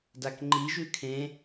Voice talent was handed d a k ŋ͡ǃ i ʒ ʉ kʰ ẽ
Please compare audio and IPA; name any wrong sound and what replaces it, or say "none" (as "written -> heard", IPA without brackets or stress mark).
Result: none